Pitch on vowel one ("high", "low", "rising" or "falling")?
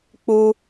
high